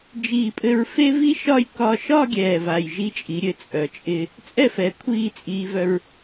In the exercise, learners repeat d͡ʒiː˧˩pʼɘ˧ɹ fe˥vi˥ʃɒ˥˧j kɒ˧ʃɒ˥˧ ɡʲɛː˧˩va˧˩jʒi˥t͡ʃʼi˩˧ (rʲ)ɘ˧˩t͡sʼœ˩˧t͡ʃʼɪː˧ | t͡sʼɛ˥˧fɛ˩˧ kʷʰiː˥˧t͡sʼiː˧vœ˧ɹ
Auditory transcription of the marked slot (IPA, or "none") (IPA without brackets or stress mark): ɾʲ